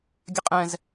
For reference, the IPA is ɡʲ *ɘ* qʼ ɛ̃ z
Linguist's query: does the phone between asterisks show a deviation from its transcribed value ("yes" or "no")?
no